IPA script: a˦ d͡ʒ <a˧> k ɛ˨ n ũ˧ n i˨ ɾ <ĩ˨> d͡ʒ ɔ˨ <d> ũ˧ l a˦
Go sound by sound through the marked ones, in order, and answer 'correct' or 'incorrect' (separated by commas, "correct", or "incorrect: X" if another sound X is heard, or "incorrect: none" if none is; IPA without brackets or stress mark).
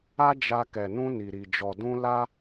correct, incorrect: i˨, correct